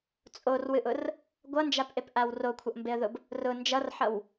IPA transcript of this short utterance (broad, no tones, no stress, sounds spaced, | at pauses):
t͡sʼ o r w ɨ ʔ ʊ r | ɡʷ ʌ n d͡ʒ a p ʔ e p ʔ a w r o kʷʰ ʌ ʔ m b e ə̯ ð ʊ b | r ʊ n d͡ʒ ʌ r ħ ʌ w